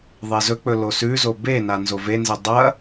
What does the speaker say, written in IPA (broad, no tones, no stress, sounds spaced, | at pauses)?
ðˤ e z ɵ k͡p ɵ l o s ʉ z o b e n a n z o v e n z e dˤ ɐ